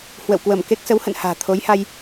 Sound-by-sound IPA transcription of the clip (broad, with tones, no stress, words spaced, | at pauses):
hwə̰˧˨wkwə˧˩mke˦˥k̚ sə˨˦whə̰˧˨n ha̤ː˨˩t̪ʰo˨˦jha˧j